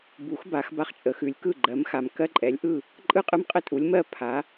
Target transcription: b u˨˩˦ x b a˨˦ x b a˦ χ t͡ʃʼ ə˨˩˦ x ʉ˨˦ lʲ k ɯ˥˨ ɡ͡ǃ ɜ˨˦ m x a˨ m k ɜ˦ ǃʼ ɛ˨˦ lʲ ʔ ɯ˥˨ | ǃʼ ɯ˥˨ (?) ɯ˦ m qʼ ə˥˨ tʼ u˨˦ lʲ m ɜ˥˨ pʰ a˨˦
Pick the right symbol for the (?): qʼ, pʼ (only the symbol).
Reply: qʼ